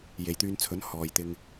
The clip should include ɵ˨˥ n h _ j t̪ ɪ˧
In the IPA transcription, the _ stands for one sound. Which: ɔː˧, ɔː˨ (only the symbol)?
ɔː˨